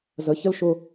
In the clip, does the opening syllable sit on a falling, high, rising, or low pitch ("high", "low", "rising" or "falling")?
rising